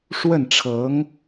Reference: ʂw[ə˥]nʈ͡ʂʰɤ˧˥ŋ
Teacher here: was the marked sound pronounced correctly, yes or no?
no